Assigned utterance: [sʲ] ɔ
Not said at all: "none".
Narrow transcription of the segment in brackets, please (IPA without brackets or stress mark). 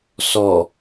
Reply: s